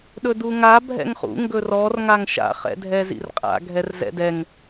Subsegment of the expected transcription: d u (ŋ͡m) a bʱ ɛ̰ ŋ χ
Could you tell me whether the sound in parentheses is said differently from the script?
yes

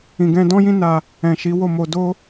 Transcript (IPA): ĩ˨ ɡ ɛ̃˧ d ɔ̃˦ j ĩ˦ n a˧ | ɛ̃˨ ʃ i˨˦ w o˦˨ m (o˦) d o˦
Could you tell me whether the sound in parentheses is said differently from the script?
yes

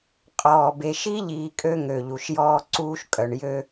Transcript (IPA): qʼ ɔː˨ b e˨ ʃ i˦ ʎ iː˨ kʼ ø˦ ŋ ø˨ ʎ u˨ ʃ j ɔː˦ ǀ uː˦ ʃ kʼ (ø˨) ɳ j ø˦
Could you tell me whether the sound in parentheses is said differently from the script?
yes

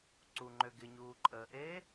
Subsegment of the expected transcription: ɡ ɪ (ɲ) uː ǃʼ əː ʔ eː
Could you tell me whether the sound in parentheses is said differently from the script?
no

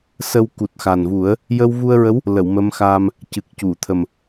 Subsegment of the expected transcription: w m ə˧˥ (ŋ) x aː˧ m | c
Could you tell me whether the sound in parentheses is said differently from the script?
yes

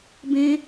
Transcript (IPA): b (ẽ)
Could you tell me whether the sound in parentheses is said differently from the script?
no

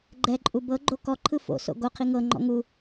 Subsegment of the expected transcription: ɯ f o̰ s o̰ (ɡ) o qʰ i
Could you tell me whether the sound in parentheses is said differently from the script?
no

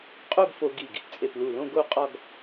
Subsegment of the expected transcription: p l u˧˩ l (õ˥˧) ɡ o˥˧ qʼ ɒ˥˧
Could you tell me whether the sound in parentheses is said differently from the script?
no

